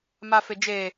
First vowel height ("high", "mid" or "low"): low